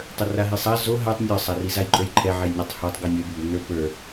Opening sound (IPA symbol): tˤ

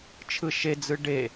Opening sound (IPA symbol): t͡ʃʰ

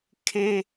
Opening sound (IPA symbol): kʰ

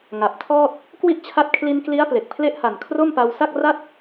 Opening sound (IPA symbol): ŋ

